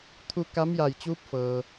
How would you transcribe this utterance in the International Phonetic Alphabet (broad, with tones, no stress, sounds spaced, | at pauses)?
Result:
t̪ʰ u˧ k a˧˥ m j a˧˩ j t͡ɕ uː˧˥ p̚ f ɤː˩